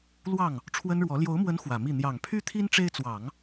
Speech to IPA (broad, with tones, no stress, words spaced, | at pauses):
lwɑ˥˩ŋ | ʈ͡ʂʰwə˥nɻwɔ˧˥ ljo˧˥ʊ̯mwə˧˥n xwä˨˩mi˥˩ n̪jɑ˨˩ŋpʰy˥t̪ʰi˥n ʈ͡ʂe˥ɪ̯t͡swɑ˨˩˦ŋ